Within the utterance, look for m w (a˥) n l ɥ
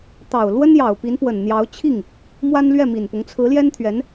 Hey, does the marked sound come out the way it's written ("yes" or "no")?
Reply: yes